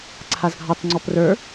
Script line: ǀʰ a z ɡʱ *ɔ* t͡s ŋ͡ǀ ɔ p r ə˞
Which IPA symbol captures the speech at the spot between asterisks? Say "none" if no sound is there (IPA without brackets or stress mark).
ɑ